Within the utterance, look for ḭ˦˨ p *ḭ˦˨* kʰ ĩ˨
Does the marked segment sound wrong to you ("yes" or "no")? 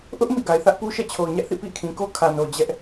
no